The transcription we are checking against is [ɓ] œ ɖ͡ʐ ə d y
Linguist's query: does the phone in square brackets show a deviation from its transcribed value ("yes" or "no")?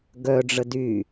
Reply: yes